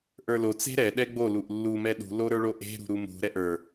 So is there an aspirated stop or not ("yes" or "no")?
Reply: no